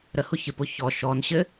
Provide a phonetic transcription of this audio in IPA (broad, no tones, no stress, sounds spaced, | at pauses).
ɾ ə h ʊ ç ɘ p ʊ ç ɔ ʃ ɔ n ɕ ɘ